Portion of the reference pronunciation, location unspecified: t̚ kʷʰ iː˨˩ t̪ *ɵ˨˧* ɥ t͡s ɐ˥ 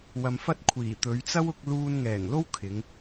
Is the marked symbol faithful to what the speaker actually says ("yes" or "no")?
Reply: yes